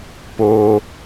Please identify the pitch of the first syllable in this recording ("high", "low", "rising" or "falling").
high